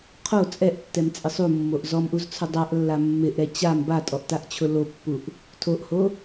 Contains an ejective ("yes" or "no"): yes